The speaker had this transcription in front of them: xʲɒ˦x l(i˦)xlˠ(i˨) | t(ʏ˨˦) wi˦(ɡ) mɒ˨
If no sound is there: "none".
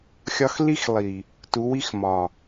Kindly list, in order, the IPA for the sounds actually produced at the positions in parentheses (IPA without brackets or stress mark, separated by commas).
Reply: i˦, i˨, u˨˦, x